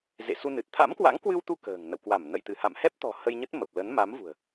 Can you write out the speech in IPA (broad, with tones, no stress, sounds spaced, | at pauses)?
z ḛ˧˨ s u˧ n ɨ˨˩ t̚ t̪ʰ a̰˧˥ m k w a̰˧˥ ŋ k w ɨ˧ w t̪ u˧ k ə̤ː˨˩ ŋ n ə̰˧˨ w k w a˧˩ m n ə̰˧˨ j t̪ ɨ˧˩ h a̰˧˨ m h ɛ˦˥ p̚ t̪ ɔ̤˨˩ h ə˧ j ɲ ə˦˥ t̚ m ə˨˩ p̚ l ə˨˦ n m a˨˦ m v ṳ˨˩ ə̯